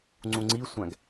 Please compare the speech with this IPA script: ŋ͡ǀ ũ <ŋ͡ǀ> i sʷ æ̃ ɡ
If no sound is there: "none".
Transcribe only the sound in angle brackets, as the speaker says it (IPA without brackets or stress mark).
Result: ŋ͡ǀ